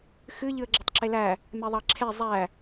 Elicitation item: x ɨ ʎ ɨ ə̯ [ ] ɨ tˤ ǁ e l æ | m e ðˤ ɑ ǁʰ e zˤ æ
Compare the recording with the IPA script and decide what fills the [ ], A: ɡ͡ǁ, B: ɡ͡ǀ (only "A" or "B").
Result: A